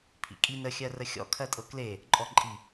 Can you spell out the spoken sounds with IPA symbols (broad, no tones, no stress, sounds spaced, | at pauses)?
pʰ ḭ kʼ i n ə xʲ ɜ r ə xʲ ɔ̰ kʰ ɜ tʼ ɤ k l e | ǃʼ ɔ ǃʼ i